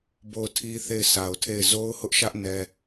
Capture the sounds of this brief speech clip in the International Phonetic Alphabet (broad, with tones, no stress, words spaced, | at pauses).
bo˦˨ʊ̯tʰi˦ θe˦˨ɪ̯sa˨ʊ̯tʰe˦˨ɪ̯ zo˦ʊ̯hʊ˦ʔʃä˦ʔ nɛ˦